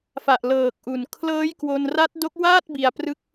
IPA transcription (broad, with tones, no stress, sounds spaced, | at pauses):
f a˨˩ ʔ l ɤː˨˩ k̚ ʔ u˨˩ n kʰ l ɤː˦˥ j k w o˧ n r a˦˥ t̚ d o˦˥ k̚ w aː˥˩ t̚ b i˧ a̯ p r ɯ˦˥ k̚